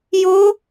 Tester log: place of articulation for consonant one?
palatal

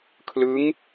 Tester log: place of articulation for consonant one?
velar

